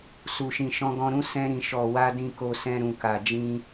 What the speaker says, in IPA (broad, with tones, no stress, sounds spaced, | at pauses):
s u˨ ʃ ĩ˨ ʃ ɔ̃˧ ɡ ɔ̃˧ ɾ ũ˦ s ɛ̃˧ ɾ ĩ˨ ʃ ɔ˨ w a˧ d ĩ˨ k o˧ s ɛ̃˧ ɾ ũ˨ k a˨ d͡ʒ ĩ˧